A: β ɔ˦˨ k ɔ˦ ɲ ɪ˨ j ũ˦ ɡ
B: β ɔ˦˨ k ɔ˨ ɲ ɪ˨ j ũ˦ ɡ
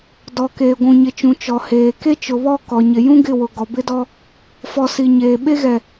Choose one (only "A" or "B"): B